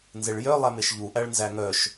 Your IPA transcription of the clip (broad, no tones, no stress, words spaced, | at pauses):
nzeɭjœ lˠæmeʃʎu ʔæɭnzæŋœʃ